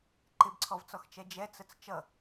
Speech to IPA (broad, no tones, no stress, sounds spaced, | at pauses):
ǃ ɪ b ǀʰ ɔ v t͡s ɔ x t͡ʃ ɛ d͡ʒ ɛ t͡s ə t͡s t͡ʃ ʌ